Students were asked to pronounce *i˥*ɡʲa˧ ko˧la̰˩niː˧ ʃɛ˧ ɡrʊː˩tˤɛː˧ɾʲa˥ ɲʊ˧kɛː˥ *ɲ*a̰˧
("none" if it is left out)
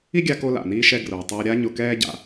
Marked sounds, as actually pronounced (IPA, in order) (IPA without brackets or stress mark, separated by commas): i˥, ɟ